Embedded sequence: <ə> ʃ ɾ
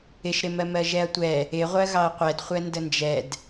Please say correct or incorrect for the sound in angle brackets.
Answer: incorrect